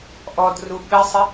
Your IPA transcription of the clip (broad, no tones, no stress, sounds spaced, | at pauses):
ʔ ɔ d r u ɓ ɘ sˤ ɘ